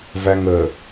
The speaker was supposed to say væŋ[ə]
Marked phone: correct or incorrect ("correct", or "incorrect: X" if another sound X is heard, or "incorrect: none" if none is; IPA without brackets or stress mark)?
correct